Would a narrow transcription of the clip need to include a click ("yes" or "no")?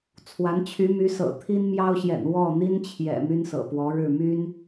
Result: no